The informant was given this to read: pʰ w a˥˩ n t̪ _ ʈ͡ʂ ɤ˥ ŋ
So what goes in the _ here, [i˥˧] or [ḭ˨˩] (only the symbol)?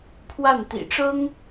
ḭ˨˩